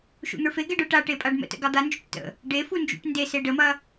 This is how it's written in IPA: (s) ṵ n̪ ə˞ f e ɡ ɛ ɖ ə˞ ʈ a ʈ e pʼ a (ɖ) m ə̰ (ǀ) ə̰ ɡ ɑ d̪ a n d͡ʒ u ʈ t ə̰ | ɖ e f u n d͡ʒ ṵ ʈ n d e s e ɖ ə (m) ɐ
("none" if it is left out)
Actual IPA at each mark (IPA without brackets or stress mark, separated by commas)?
ʃ, ɖ, t, m